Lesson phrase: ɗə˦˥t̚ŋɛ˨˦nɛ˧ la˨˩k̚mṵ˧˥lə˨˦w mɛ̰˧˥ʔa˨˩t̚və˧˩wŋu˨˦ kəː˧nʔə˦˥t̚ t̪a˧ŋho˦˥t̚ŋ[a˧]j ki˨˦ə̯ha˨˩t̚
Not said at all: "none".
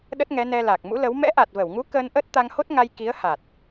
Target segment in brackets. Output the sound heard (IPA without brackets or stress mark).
a˧